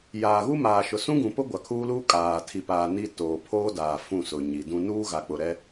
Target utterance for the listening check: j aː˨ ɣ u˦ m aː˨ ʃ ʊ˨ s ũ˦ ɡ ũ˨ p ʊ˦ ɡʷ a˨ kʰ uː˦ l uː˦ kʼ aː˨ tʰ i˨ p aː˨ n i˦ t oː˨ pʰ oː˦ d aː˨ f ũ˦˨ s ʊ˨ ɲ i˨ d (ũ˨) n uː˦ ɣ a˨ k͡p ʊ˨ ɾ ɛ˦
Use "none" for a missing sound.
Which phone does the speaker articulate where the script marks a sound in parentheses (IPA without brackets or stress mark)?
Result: ũ˦